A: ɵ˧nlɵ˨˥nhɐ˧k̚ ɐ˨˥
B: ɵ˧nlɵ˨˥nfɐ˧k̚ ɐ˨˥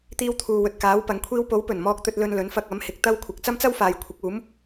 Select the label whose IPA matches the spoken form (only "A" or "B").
B